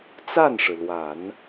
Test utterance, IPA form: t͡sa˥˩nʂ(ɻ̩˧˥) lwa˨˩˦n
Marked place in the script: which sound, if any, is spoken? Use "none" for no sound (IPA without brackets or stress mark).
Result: ɻ̩˩